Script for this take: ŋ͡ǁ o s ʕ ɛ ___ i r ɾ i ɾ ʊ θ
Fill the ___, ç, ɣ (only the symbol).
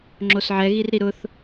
ɣ